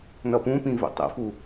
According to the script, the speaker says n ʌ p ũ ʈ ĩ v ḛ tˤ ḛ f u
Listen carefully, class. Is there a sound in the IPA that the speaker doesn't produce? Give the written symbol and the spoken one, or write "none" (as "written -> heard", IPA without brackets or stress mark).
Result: ʈ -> p